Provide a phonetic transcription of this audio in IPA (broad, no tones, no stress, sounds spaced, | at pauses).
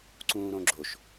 ǀ ũː ɾ õ ɡ͡ǁ o ʃ